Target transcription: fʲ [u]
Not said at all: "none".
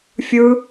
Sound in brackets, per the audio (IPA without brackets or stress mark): ɯ